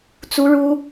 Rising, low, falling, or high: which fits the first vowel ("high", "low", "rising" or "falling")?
high